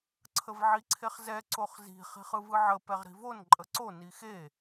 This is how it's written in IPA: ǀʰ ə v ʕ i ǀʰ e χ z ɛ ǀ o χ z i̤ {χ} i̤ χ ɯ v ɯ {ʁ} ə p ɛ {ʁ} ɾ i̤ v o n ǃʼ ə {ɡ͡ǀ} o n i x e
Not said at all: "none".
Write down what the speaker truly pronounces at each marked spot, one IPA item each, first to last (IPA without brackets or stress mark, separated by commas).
χ, ʕ, ʁ, ǀ